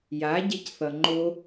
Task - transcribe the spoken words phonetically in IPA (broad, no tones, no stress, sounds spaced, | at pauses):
j a ɟ e c θ ʌ ŋ͡ǃ o